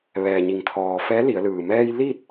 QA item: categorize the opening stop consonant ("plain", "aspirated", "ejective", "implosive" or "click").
aspirated